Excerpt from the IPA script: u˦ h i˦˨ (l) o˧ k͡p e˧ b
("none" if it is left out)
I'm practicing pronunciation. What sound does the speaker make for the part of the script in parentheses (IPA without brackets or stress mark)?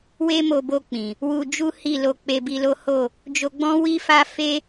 l